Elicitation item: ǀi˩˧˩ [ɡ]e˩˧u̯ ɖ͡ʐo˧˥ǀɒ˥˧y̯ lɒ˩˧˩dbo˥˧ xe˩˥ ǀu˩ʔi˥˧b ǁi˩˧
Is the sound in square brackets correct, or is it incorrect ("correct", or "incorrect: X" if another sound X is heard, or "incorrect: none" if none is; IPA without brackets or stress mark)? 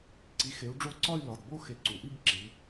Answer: incorrect: x